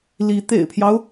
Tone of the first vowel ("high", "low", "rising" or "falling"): rising